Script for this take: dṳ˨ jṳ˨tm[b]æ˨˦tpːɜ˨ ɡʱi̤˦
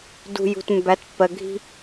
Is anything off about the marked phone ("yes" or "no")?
no